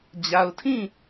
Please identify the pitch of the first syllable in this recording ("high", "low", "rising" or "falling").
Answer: low